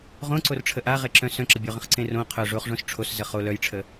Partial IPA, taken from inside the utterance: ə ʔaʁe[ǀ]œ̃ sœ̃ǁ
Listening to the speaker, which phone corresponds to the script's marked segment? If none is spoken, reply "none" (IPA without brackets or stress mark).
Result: ǁ